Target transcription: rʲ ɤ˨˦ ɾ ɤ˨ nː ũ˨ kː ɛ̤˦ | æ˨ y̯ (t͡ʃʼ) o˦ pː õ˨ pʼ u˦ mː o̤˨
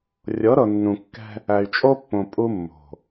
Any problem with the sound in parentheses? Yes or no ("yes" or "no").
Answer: no